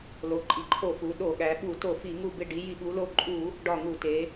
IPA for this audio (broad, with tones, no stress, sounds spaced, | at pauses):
l o˩˧ ǃʼ i˩˧ ǃʰ o˧˩˧ f u˩˧ ɗ o˧˩˧ ɠ æ˩˧ ɓ u˧˩˧ t o˧˩˧ f i˧˩˧ ŋ u˧˩ b e˧˩ ɖ i˩˧ j i˧˩˧ ɓ u˩˧ l o˧˩ ǃʼ u˧˩˧ | ɖ ɒ˧˩ ŋ u˧˩˧ t e˩˧